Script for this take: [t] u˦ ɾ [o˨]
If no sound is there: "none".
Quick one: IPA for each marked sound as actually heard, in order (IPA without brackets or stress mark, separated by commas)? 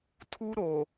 tʰ, o˨